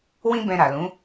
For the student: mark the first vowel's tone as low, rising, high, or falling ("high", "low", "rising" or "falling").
high